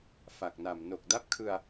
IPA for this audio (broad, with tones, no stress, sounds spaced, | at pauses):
f a˨˩ k̚ n a˨˩ m n o˨˩ k̚ d a˦˥ p̚ kʰ ɯ˧ a̯